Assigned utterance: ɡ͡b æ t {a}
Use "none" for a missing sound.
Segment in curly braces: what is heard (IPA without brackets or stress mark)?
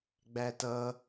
ʌ